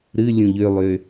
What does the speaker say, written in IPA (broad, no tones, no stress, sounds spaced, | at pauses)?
ɾ ɨ lʲ ũ ʎ ø lˠ ø